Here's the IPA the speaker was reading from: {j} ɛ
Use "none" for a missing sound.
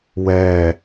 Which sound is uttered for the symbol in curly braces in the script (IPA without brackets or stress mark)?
w